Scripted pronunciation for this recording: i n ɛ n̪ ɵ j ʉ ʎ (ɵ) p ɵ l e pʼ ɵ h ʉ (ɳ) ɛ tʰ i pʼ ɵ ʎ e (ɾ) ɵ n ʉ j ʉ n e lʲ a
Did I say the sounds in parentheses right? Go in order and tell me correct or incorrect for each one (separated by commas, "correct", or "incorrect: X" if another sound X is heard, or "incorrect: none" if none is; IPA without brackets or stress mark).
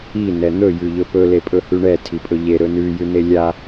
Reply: correct, correct, correct